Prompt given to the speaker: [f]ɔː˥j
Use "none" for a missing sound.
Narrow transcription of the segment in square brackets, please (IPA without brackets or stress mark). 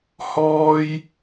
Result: h